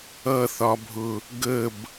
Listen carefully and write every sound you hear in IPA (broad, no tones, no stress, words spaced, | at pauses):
ʌθɒbʱʊ | ɡəb